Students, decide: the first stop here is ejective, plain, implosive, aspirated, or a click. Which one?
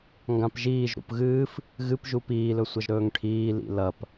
plain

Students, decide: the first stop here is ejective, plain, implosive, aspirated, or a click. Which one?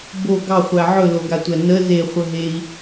plain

